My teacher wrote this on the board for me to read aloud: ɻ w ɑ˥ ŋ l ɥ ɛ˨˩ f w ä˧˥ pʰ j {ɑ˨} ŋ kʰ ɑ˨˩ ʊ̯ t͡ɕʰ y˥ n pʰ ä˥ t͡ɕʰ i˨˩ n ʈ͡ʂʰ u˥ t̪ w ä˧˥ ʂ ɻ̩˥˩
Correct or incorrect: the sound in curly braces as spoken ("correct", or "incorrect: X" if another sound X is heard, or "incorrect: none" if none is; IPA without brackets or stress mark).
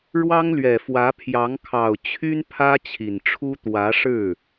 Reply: incorrect: ɑ˧˥